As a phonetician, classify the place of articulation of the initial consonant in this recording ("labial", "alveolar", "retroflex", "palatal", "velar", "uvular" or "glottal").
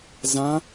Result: alveolar